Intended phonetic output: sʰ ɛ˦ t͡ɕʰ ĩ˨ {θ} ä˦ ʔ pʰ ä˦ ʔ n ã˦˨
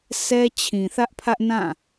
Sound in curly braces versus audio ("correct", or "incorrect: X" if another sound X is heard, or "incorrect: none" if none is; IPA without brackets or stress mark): correct